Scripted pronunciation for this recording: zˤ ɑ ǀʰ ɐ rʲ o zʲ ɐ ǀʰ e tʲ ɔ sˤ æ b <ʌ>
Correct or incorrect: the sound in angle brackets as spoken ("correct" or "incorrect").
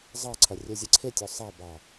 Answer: incorrect